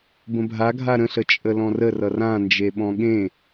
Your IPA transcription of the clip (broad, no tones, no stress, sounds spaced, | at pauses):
b ə̃ bʱ a ɡʱ a ɾ ə̃ ɬ ə t͡ʃʼ ə l ɔ̃ r ə r ʌ r ã n d͡ʒ e ɓ ɔ̃ ɠ ẽ